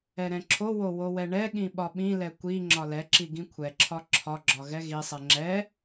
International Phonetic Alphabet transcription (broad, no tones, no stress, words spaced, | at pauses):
ɛɾɛ̃ǁʰowo wowɛɳɛɠĩ ɓɒɓĩlɛ kʷi ŋ͡ǁɒlɛǁi ɡĩkʷʰɛǁʰɒ ǁʰɒɡ͡ǁɒ ɣɛɣisˤɛ ŋ͡ǁɛ